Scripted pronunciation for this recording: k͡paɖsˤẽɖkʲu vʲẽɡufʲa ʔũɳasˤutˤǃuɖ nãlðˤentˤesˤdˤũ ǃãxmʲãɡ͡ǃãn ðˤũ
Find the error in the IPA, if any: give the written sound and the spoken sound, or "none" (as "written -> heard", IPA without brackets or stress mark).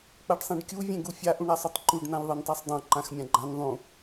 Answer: none